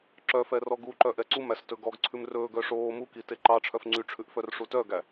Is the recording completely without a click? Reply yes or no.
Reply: no